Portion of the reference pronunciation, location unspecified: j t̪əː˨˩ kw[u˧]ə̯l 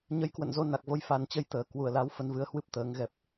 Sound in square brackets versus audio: incorrect: u˨˩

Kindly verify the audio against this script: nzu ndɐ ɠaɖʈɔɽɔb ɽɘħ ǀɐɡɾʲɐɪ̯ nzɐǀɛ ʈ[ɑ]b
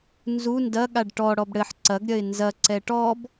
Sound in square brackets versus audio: incorrect: ɔ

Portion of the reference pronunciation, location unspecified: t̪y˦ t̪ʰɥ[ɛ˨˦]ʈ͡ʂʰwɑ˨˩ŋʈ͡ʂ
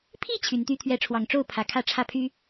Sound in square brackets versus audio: correct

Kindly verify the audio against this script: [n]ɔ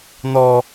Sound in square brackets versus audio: correct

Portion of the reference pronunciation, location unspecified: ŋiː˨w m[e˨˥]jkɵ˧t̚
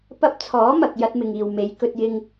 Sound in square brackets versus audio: correct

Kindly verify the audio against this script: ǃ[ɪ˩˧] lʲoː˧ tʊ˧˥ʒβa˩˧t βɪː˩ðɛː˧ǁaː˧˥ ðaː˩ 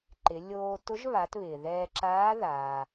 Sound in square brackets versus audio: correct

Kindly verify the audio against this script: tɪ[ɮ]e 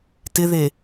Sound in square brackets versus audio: incorrect: ð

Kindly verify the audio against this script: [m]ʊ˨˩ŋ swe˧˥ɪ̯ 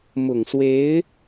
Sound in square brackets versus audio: correct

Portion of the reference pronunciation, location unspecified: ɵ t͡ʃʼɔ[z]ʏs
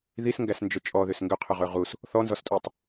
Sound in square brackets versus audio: incorrect: ð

